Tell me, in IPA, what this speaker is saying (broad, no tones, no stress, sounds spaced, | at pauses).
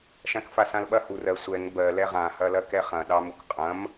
ʃ ã k f a s ã l ɓ ɐ h u r ɜ sʷ ɛ ŋ b ɜ l ɛ ʁ ã h ɐ l ɐ k ɛ χ ɐ̃ ɗ ɑ m u k qʼ ɐ̃ m